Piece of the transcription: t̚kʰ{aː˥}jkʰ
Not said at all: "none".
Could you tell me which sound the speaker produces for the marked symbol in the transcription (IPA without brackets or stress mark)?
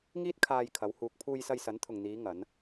aː˧